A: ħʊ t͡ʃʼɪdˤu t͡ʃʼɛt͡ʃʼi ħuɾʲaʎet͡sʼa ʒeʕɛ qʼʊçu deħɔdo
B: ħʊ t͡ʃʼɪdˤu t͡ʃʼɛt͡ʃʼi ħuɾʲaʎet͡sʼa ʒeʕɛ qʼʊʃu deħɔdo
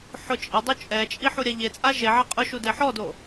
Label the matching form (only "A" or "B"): B